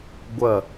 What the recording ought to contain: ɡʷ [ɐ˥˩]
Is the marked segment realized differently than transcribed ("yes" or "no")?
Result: no